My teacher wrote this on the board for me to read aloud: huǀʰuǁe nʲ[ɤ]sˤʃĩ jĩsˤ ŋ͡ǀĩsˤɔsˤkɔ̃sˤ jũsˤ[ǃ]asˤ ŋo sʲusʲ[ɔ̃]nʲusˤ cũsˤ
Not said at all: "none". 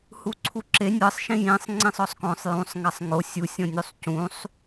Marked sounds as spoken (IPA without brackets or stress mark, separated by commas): ɤ, ŋ, ɔ̃